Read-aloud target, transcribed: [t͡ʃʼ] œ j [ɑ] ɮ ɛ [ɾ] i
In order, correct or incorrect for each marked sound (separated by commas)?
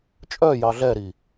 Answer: correct, correct, correct